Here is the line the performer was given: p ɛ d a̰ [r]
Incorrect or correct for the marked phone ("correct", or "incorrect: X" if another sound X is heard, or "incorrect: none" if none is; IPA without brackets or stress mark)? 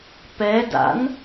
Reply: incorrect: n